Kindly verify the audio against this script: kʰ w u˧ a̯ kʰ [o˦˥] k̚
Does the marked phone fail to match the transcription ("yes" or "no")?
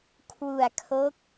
no